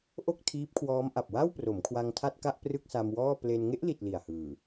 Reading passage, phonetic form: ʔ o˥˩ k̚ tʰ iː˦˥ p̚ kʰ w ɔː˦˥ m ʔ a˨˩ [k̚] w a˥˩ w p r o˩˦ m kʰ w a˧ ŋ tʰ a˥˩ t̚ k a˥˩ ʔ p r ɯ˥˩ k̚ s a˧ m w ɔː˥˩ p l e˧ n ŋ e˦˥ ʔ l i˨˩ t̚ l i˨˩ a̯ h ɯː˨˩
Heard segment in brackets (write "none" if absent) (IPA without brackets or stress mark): p̚